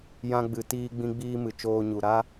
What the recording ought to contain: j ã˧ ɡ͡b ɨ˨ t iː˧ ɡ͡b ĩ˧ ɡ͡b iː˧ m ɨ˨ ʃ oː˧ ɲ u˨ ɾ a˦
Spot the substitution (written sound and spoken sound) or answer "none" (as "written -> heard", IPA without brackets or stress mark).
ʃ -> t͡ʃ